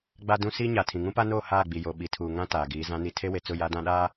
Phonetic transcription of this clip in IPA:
ɡ͡ba˦dũ˦ si˦ɲa˨ tʰĩ˨ŋũ˦pa˦noː˦˨ haː˦˨ɡ͡bi˨ jo˨ ɓi˨tʰuː˨ ŋã˦ taː˨ɡiː˨˦ zã˨˦ni˨ tʰe˦we˨t͡sʊ˦˨ ja˦dã˦ɗaː˦

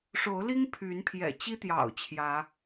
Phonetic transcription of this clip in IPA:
ʂo˨˦ʊ̯li˦ŋ pʰy˨˦npʰjɛ̰˨˩t͡ɕi˦t̪jɑ̰˨˩ʊ̯ t͡ɕʰjä˨˦

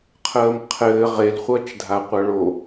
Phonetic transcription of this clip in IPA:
qʰəːmqʰɘː ʁelχʷʌːt͡ʃdʱaqʷʌ ɭo

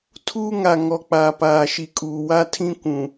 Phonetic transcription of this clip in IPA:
tʰuː˦ŋa˨ ŋɔ˨k͡paː˨paː˨ ʃi˨kʼuː˨ wa˦tʰĩ˦ kʷũ˨

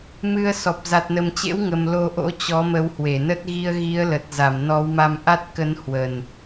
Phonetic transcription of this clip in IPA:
mɨ˧ə̯sɔ˨˩p̚ za˨˩t̚nə˨˩mt͡ɕḛ˧˥wŋə˨˩m lo˧ʔo̰˧˥ t͡ɕɔ˨˦mə˨˦whwe˧˩nə˦˥t̚ ɣi˧ə̯ɣi˨˦ə̯lə˨˩t̚ za˧˩mnɔ˨˦wma˧m ʔa˦˥t̚kə˨˦n hwə˨˩n

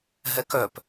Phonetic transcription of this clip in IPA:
ɦɛkœp

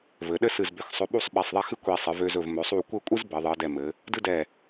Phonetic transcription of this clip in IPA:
vɘ˩˧ɗɘ˥˧sɨ˧˩zbø˧˩x sˤɵ˧ɓu˥˧sˤ ɓɛ˧˩sˤðˤɛ˥˧xɨ˥ kʷi˧˩sˤɨ˩˧vø˧zɵ˧˩v mɵ˩˧sˤu˧˩ kʷɘ˥˧ kʷʼɨ˥z bɘ˩˧ðˤɨ˩˧ə̯dɛ˧˩mɘ˩˧ | dɨ˥dɛ˧˩

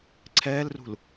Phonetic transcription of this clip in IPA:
ǀʰɛːlrṳl

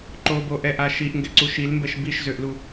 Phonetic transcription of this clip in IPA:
ǃoboʔɛʔa ʃiʔŋɡɛǀu ʃilmbɛʃ biʃzøʔlu

